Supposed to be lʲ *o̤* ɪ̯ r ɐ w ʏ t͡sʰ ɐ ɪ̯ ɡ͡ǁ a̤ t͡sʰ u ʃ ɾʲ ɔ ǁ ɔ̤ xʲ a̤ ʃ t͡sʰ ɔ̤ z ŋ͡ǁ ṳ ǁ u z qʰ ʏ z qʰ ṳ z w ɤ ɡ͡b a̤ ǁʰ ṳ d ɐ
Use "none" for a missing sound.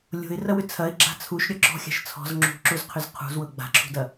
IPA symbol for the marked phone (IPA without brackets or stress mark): o̤